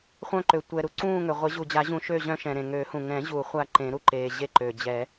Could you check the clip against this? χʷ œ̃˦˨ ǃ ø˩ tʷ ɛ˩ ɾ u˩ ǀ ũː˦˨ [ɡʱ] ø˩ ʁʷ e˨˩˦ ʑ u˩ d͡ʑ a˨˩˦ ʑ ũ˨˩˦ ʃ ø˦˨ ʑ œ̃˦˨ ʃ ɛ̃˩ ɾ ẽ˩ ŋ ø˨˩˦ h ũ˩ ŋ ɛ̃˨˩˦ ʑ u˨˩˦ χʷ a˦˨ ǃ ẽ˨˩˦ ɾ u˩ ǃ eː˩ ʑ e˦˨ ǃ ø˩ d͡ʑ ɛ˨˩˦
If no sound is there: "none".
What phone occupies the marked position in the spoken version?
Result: ŋ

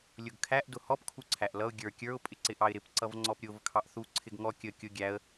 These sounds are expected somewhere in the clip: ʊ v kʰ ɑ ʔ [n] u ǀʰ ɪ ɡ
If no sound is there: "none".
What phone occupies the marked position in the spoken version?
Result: θ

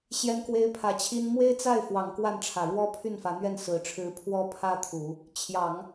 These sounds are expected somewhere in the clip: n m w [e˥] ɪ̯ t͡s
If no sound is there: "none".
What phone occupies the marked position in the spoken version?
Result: e˥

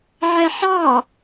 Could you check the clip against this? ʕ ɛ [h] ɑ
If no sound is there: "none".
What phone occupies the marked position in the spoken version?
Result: ħ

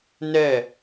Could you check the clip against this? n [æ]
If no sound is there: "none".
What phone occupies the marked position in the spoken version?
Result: ɛ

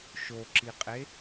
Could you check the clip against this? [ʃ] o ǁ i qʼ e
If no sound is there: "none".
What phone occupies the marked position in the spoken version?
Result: ʃ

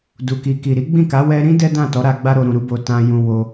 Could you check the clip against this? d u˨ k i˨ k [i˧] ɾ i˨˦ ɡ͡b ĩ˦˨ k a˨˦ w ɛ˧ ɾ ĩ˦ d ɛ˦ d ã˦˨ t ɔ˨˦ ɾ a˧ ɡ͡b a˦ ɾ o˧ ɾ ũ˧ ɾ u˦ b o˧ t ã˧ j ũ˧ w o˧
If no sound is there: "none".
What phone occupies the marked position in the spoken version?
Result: i˨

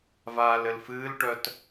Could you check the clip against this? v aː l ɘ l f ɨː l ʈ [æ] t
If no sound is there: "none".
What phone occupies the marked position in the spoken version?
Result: œ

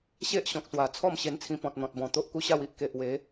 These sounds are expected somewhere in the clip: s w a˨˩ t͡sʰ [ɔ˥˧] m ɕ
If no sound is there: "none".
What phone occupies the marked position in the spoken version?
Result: ɔ˥˧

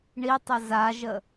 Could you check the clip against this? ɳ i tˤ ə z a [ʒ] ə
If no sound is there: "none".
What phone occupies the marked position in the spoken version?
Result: ʒ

